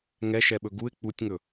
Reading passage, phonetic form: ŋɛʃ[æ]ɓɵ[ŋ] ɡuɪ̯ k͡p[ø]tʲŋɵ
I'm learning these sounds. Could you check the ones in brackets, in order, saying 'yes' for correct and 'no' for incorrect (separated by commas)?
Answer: no, no, no